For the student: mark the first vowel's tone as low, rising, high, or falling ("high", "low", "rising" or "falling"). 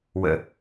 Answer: low